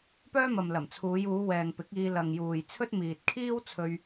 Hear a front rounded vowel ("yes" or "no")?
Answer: yes